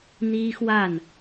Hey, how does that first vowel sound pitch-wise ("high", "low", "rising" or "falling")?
high